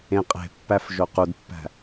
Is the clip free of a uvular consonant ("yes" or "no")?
no